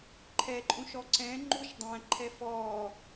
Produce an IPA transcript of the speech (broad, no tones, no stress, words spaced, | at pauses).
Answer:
ǃʰɛǃʼũʃɔ ǀɛ̃ ŋ͡ǃuʃdˤæ̃ ǃʰɛfɔː